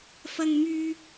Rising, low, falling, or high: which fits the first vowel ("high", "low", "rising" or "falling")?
high